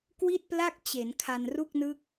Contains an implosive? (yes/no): no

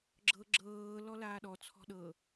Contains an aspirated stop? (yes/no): yes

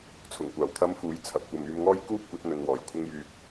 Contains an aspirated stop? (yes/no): yes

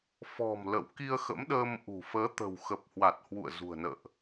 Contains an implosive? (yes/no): yes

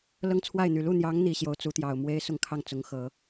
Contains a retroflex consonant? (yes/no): no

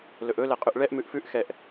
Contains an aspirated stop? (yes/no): no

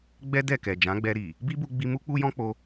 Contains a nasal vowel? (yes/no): yes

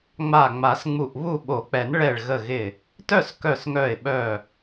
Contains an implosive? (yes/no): yes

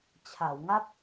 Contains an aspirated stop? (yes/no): yes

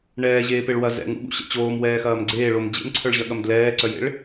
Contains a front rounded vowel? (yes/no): yes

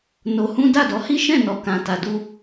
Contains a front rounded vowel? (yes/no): no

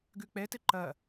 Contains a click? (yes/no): yes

